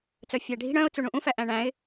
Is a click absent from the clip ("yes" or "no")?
yes